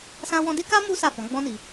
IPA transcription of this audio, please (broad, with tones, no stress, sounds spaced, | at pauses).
s ã˦ w ɔ̃˦ d e˦ k a˦ m u˦ s a˦˨ f ɔ̃˨˦ ɡ͡b ɔ̃˦ n i˧